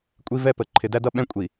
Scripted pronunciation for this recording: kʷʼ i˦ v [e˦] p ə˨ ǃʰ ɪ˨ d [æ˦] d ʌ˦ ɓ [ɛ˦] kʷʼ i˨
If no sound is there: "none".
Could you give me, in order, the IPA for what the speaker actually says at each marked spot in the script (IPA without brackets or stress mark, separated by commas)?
ɛ˦, æ˦, ɛ̃˦